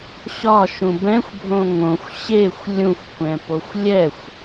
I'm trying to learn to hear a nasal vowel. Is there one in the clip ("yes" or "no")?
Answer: yes